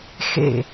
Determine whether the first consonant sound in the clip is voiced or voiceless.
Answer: voiceless